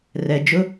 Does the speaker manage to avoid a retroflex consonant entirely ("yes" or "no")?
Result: yes